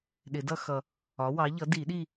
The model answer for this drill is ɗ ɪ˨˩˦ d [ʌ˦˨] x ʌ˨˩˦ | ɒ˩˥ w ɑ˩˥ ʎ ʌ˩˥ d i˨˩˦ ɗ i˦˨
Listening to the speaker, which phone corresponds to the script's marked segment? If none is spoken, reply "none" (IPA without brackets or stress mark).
ʌ˦˨